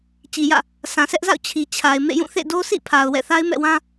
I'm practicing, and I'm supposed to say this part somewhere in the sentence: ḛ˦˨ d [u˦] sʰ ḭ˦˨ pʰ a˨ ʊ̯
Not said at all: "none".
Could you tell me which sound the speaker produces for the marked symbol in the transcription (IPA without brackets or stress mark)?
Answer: o˦